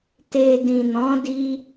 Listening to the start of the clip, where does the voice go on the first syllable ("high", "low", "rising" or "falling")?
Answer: low